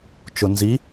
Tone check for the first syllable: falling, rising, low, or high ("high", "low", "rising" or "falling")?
low